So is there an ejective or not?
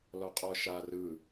yes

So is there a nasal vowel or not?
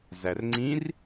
yes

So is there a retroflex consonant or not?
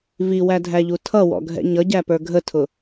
no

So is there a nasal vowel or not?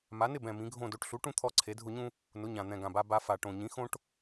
yes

